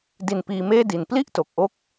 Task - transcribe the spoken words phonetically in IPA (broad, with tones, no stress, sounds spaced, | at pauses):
d i˨˩ n p iː˧ m eː˥˩ d i˨˩ n p l i˥˩ ʔ t o˨˩ k̚ ʔ o˦˥ k̚